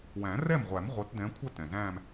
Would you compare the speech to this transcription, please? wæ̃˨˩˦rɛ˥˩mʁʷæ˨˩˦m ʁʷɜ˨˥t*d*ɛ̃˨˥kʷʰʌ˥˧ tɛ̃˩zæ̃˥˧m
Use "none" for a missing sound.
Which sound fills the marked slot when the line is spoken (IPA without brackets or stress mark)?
d